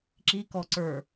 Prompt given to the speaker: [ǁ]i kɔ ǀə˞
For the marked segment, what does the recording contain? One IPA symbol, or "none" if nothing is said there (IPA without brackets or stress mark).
ǁ